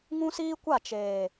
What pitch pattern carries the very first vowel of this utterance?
high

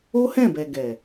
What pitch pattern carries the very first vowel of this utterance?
high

